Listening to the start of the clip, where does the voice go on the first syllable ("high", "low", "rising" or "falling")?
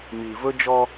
low